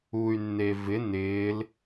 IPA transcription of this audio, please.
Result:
u y̯ nː e v ɪ n ɪː l

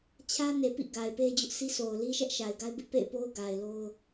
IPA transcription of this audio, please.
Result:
t͡ɕʰ ä˦ n e˨ p ḭ˦˨ ɡ a˨ ɪ̯ p e˦ d͡ʑ ʊ˦ ʔ s i˦ s o˨ ʊ̯ l i˦ ʃ ɛ˦ ʔ ʃ a˨ ɪ̯ ɡ a˦ ɪ̯ b ɪ˦ ʔ p ḛ˦˨ ɪ̯ p o˦ ʊ̯ ɡ a˨ ɪ̯ l o˦ ʊ̯

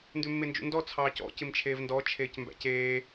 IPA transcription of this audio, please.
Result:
n d ʉ mː e n d͡ʒ ṵ n d ɔ t͡sʰ ɑː c ɔ̰ c ɪ m t͡ʃʰ eː v n d ɔ t͡ʃʰ eː c m b æ̰ c eː

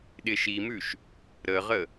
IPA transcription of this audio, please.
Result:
ɗ ɪ ʃ i m ʉ ʃ | ɾ ə ʁ ə

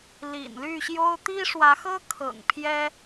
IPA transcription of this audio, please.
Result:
l ḭ˨˩ n l y˥˨ ɕ j o˦ ʊ̯ t̪ i˦ ʂ w ä˨˦ x ɤ˦ kʰ ɤ̰˨˩ ŋ pʰ j ɛ˦

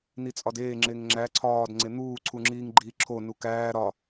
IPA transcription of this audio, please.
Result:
n i t͡sʼ ɒ d eː ŋ͡ǁ e ŋ ŋ͡ǁ æ ǀʰ ɒː d ŋ͡ǀ e n̪ uː ǀʰ u ŋ͡ǁ iː ŋ ɡ͡ǃ iː ǁʰ o n u k æː ɾ ɒ

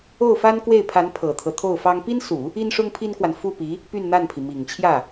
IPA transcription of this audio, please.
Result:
o˥˩ ʊ̯ f a˥ n k w e˥˩ ɪ̯ pʰ a˧˥ n pʰ ɤ˨˩ t̪ʰ ɤ˦ t̪ʰ o˥˩ ʊ̯ f ɑ˥ ŋ p i˥ n s u˨˩˦ | i˥ n ʂ ʊ˥ ŋ pʰ i˥ n k w a˨ n f u˥˩ p i˧˥ | p y˥˧ n n̪ a˥˩ n pʰ i˩ m i˨˩ ŋ t͡ɕʰ j ä˥˩

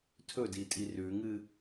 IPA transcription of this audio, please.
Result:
tʰ ɵ d i tʼ i r ʉ ŋ ɨ

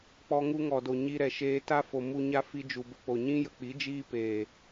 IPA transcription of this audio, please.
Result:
k͡p ɔ˧ ŋ u˧ ŋ ɔ˨ d o˨ ɲ i˧ ɾ ɛ˨ ʃ eː˧ t a˦ f o˨ m u˧ ɲ a˦ f i˧ d͡ʒ u˨ b ə˧ k͡p o˨ ɲ ĩ˦ j ə˨ k͡p i˨˦ d͡ʒ iː˦ p eː˨

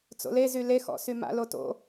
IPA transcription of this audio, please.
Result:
t͡s o̰ l e z y l e x ɔ̰ s y m a̰ l o t o̰

